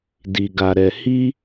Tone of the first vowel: low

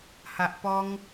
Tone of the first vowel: low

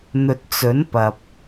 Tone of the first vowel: low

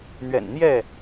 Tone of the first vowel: low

